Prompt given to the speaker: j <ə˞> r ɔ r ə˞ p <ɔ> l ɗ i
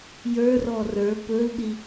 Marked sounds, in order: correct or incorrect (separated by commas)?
correct, incorrect